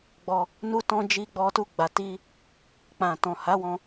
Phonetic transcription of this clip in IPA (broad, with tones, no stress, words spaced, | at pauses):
ɡ͡bɔ˧ | nu˧tɔ̃˧ d͡ʒi˧ɡ͡bɔ˧tu˧ɡ͡ba˨ ti˧ | k͡pã˨tɔ̃˨ ha˨˦wɔ̃˧